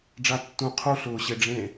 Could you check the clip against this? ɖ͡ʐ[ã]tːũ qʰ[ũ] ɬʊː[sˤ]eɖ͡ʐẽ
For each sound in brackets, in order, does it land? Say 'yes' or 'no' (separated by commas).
no, no, no